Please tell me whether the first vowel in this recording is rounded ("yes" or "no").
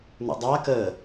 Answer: yes